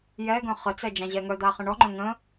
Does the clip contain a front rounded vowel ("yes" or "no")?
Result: yes